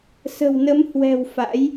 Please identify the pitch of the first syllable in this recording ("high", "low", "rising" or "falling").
low